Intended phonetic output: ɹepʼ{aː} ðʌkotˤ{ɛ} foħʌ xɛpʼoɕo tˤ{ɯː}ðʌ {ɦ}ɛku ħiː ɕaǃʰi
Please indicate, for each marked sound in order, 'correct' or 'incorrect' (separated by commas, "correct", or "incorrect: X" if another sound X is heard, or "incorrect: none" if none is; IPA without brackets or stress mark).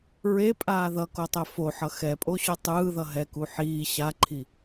correct, correct, correct, correct